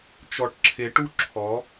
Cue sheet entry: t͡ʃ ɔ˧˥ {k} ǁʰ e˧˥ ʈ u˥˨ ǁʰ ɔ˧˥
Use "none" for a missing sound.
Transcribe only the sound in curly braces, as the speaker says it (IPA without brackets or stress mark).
ʈ